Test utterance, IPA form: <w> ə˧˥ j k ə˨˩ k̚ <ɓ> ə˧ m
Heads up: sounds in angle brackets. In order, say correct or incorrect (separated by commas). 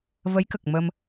incorrect, incorrect